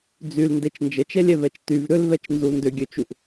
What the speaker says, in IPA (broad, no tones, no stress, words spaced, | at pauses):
d͡zylndet͡ʃ nd͡ʒət͡ʃɛlʲɛvɛt͡ʃ tyv ɾʏlvɛt͡ʃnzu ndʏɡʲøt͡ʃuʔ